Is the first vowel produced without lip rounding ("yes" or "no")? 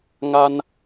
yes